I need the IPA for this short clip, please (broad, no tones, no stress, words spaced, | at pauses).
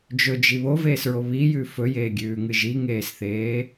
d͡ʒɵd͡ʒi βoveːsɹo βijʉ fɵjeːɡʲʉːŋɨ ʒiŋeːsθeː